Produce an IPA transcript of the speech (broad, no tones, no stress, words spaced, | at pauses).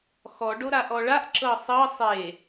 xɔ ɖoɾaʔɔɭaʔ ǁɤsˤɤ sˤe